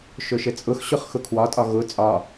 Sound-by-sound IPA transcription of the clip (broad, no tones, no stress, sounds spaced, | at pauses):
ʃ ɵ ʃ ɘ t͡sʼ ʊ x ɕ ʊ χ x ʊ kʰ w ɒ tʼ ɒ ɣ ʊ t͡sʼ ɒ